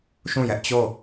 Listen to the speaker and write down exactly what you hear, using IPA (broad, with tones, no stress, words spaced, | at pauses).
ʃũ˦˨jɛ˦ʔ t͡ɕo˦˨